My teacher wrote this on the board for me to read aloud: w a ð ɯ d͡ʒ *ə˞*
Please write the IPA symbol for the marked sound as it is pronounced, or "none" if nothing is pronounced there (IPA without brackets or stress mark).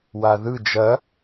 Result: ɐ